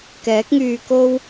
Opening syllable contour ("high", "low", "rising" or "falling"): rising